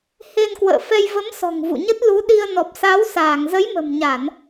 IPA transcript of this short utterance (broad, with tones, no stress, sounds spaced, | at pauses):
h e˧ n k w ə̰ː˧˨ f ɛ˧ j v ə˨˦ m s ɔ̤˨˩ ŋ v ṵ˧˨ ɲ ə˦˥ t̚ l u˨˦ ɗ i˧ ə̯ n ɔ˨˩ p̚ s a˨˦ w s aː˧˩ ŋ z ə˨˦ j m ə̤˨˩ m ɲ a˧˩˨ n